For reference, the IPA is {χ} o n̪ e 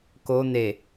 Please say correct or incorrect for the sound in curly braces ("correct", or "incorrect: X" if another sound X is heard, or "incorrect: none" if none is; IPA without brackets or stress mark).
incorrect: k